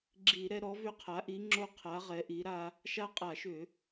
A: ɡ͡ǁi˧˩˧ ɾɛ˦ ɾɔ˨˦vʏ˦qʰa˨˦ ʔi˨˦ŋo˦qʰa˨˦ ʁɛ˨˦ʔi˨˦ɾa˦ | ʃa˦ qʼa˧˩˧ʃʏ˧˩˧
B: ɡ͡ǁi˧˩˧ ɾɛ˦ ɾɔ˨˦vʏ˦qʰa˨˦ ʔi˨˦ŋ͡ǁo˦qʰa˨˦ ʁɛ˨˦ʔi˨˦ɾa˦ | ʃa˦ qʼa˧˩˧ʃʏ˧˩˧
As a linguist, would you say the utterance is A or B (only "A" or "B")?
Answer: B